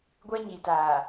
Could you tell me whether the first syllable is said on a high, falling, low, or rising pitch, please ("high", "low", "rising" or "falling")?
high